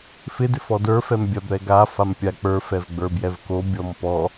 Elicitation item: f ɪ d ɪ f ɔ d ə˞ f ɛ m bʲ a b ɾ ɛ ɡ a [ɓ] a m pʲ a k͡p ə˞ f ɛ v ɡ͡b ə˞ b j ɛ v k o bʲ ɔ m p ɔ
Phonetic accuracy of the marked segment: incorrect: f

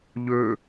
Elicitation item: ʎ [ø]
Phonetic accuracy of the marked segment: correct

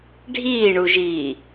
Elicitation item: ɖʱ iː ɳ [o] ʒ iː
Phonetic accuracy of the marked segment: incorrect: u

